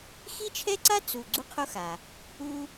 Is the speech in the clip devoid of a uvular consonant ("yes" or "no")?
no